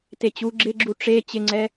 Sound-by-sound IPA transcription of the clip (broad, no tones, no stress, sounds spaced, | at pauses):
t e t͡ɕ u ɡ͡ǁ ɪ ɡ͡ǁ u ʈ͡ʂ e t͡ɕ ɪ ŋ͡ǀ ɛ